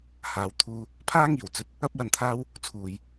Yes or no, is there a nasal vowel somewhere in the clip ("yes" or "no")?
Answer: no